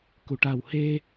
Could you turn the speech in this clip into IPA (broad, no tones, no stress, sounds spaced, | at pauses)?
k u ʈ a w h e